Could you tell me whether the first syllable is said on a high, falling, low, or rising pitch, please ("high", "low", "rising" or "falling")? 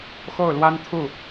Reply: falling